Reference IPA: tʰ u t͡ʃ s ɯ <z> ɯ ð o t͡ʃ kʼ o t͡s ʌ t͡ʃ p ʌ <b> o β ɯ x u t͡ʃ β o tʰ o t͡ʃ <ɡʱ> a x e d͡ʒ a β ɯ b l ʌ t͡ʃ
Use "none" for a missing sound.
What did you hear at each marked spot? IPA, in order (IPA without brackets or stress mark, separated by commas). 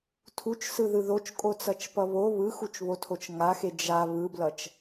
ð, β, ŋ